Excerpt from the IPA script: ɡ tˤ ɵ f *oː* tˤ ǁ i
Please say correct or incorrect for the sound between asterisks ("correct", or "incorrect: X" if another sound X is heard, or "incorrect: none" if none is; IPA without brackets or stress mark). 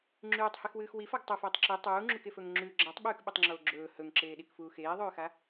incorrect: ɵː